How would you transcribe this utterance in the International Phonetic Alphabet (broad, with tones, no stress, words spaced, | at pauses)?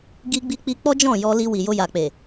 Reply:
ɡi˧ɡ͡bi˧k͡pi˧ k͡pɔ˦d͡ʒɔ̃˦˨jɔ˧ li˧ wi˨jo˧ ja˨k͡pe˨